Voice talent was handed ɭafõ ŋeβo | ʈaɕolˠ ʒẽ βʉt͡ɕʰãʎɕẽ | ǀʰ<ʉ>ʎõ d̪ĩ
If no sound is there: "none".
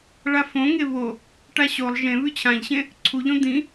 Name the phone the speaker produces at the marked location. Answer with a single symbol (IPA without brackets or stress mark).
u